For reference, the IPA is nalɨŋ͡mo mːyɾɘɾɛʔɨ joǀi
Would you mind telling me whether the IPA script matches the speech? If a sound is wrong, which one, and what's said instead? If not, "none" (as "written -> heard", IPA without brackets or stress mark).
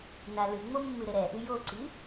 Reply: y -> ɨ